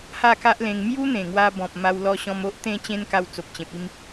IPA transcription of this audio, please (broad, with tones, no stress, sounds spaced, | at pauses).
h a˥˧ k a˦ ʔ l ẽ˧ ŋ m j u˦ n̪ ẽ˨˩ ŋ w a˧ b ɔ̃˨ p̚ m a˧ w l ɔ˧ ɕ ɔ̃˧ m o˦ ʔ t̪ ẽ˥˧ t͡ɕ ẽ˦ n k a˧ w t͡s o˨ p̚ t͡ɕ ẽ˨ p̚ i˥˧ m